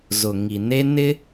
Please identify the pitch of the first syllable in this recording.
low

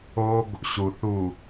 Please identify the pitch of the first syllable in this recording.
high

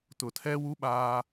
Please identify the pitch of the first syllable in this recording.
low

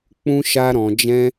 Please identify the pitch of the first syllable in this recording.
high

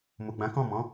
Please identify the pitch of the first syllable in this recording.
low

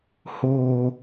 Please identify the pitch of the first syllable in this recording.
low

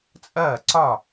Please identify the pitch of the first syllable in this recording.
falling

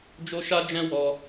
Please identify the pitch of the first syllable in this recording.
high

